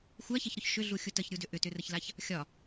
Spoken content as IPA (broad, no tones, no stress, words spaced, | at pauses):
xʷæçɛçɾʏç ʃʏɮuxʲu təçɾʲudʏ ʔʏtʏrəçlaç | xʲɒ